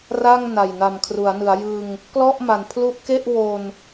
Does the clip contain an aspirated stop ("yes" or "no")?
yes